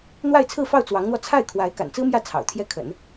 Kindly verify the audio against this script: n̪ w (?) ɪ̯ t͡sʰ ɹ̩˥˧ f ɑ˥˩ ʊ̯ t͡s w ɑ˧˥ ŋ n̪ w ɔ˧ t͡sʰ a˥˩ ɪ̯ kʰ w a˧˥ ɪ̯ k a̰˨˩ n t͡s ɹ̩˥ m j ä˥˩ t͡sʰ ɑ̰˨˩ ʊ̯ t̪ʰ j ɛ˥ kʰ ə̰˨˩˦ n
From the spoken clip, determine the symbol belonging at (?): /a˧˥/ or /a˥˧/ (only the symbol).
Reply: a˥˧